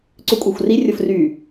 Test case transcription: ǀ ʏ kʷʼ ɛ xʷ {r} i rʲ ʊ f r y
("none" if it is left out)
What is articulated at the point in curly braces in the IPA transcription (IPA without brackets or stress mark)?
r